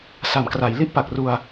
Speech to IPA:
sa˨˩mkra˩˦j li˦˥ʔpa˨˩k̚ru˧a̯

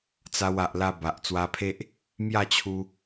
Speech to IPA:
t͡sa˧wa˨ʔla˧ ba˨ʔt͡swa˧pʰe˦ʔ | mja˥˧t͡ɕʰu˧

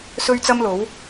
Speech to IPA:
sɵ˥ɥt͡sɐ˥mlo˨˥w

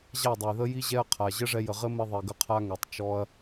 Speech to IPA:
ʑa˦˨dˤə˨jðə˦ ji˦ʑɛ˦ɐ̯qʰa˨ ʑə˦ʐɛ˧jə˨ʁɘ˦ mɘ˦ðˤi˨ɡə˦qʰa˦ ŋɛ˨tˤt͡ʃɔ˧ɐ̯

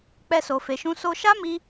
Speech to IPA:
k͡pɛ˦so˧fe˧ʃũ˦ so˦ ʃa˦mi˧

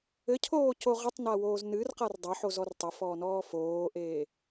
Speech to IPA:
ɘcʰoːco ʁɘtˤnawoːz nɨrqar dˤɐħozɔr tˤɐfɔːnɔː foːʔeː

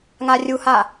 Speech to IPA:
ŋarʲuha

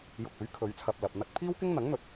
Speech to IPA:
jʊ˧k̚ɵ˨˥ɥ kʰɵ˨˧ɥt͡sʰɐ˧p̚lɐ˨p̚n̪ɐ˥t̚ pʰiː˥wkɪ˥ŋn̪ɐ˨˥ŋ n̪ɵ˨t̚

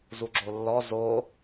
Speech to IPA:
zuɡ͡ǁolːɔ zo

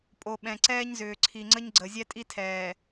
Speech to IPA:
pʼo˨ɓɛ̃˨ ǀɛː˦ɲzʏː˨ǀʰi˨ŋ͡ǀə˦ɲ ɡ͡ǀə˨ zʲɛ˦tʼi˦ tʰɛː˨

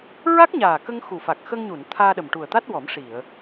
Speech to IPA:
ɹa˦˥k̚ɲaː˨˩kə˧ŋ xu˨˩fa˨˩k̚ xə˧ŋɲu˨˩˨n t̪ʰaː˧ɗə˨˩mʈu˨˩ə̯t̪a˦˥t̚ wɔ˨˩˦mʂi˨˩˨ə̯

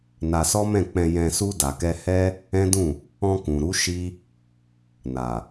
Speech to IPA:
na˧sɔ˦mɛ̃˦˨k͡pɛ̃˧ jɛ̃˧su˦ da˧kɛ˦ hɛ˦ | ɛ̃˦dũ˦˨ | ɔ̃˧kũ˨ɾu˨˦ ʃi˦ | na˨

